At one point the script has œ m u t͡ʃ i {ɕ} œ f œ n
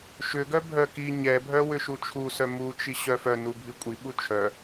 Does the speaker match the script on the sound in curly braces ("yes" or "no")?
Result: yes